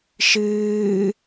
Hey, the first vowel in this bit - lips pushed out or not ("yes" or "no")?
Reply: no